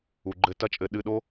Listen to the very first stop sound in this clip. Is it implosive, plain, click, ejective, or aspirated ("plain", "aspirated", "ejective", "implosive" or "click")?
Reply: click